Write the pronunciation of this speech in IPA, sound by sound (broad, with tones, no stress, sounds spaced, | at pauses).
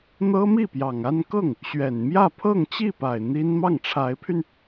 n̪ ɤ˥ m i˥˩ p j ɑ˨˩ ŋ a˥˧ n k ɤ˥˩ ŋ | ɕ ɥ ɛ˨˩ n m j ä˥˧ pʰ ɤ˥˧ ŋ t͡ɕ i˥˩ p a˨˩ ɪ̯ n̪ i˥ n m ɑ˥˩ ŋ ʈ͡ʂʰ a˧˥ ɪ̯ pʰ y˧ n